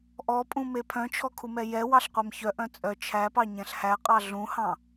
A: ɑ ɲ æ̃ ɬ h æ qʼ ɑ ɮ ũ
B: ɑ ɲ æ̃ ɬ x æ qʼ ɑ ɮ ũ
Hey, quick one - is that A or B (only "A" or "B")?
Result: A